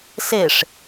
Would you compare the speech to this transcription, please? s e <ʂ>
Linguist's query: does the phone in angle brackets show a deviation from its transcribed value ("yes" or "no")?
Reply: no